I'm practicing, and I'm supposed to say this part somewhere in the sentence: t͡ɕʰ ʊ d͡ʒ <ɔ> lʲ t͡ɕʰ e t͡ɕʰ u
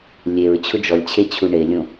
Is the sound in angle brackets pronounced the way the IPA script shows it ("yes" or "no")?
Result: yes